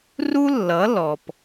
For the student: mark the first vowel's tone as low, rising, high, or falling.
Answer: high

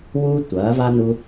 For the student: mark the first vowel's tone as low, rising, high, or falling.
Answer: high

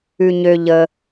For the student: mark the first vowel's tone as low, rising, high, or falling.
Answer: low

